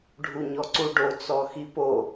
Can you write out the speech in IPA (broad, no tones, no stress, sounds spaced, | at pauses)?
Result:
ɖʱ u ɲ ɔ ǀ u ɖ o t͡s ɔ x i p o